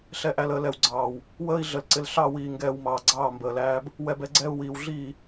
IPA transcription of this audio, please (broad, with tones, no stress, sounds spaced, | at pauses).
ɬ ɛ˨ ʔ æ˨ l əː˨ l ɛ˨ w ɡ͡ǀ ɑː˨ w | w əː˦ i̯ ɮ ə˨ l ǀ ɪ˨ l ɬ ɑ˦˨ w iː˨ ŋ ɡ ɛː˨ w m ɑː˨ ɡ͡ǀ ɑː˦˨ m b əː˨ l æː˦ b | w ɛ˦ b ɛ˦ ɡ͡ǀ ɛː˦ u̯ w iː˨ w ɮ iː˦˨